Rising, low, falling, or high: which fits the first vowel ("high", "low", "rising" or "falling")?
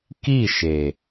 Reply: falling